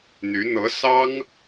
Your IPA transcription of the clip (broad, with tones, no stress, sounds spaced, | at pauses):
n̪ y˧˥ n̪ ɤ˧˥ s ɑ˥ ŋ